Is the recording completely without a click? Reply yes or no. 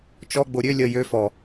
yes